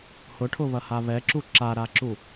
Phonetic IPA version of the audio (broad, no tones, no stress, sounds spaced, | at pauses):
h ʊ ʈʰ ʊ β ɐ h a β ɛ ǁ u ǁ a ɾ a ǁ u